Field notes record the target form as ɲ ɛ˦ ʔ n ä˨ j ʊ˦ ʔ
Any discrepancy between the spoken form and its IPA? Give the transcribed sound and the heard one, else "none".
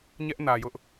none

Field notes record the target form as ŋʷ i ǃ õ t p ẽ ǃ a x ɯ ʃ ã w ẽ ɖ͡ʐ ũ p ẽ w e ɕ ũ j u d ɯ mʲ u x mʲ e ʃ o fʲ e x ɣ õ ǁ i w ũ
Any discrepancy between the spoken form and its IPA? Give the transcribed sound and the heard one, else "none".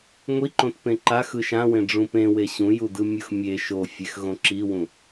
none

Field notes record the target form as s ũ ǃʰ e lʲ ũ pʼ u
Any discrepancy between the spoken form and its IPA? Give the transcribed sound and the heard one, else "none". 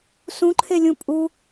none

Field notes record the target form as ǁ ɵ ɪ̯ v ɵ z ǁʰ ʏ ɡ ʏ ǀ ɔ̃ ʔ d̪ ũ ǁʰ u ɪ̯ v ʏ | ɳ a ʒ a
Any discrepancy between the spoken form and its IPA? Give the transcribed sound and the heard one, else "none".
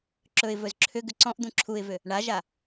none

